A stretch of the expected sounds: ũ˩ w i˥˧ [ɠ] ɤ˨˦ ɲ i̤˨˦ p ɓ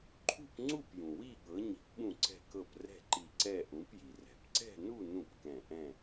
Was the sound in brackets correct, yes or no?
yes